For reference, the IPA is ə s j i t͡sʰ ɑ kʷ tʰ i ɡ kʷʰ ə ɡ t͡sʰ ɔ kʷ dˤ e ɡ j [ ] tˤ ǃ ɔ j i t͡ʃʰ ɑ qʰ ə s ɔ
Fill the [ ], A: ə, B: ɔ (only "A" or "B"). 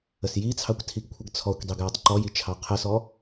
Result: B